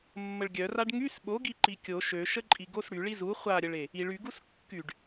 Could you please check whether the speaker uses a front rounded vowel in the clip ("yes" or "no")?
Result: yes